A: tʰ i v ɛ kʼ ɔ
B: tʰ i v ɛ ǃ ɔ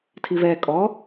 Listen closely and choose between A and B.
A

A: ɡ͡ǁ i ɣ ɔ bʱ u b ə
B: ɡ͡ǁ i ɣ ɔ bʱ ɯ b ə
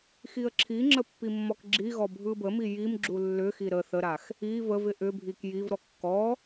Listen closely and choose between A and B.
B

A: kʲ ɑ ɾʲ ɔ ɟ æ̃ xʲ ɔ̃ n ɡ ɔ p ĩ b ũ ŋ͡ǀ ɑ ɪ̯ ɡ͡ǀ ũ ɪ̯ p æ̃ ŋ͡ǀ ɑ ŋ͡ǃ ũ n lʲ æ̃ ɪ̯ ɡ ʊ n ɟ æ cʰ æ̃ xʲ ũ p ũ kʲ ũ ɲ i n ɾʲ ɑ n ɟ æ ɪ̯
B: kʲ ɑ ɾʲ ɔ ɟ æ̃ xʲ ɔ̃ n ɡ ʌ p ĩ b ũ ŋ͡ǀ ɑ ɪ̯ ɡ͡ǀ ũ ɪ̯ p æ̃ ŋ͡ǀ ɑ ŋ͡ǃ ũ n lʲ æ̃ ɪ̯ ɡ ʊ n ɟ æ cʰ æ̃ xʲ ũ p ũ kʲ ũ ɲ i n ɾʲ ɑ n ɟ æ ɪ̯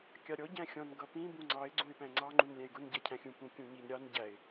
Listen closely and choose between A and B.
B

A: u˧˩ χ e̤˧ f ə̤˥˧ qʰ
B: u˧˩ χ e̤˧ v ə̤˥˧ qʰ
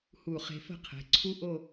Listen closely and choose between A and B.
A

